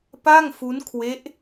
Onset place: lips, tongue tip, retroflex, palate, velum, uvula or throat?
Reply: lips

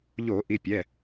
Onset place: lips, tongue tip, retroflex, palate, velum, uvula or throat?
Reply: palate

